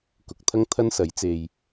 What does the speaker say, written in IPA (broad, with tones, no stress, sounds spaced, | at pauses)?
k ʊ˨˥ k̚ t̪ʰ ɐ˥ ŋ t̪ʰ ɐ˥ n s ɐ˨˥ j t͡s e˧ j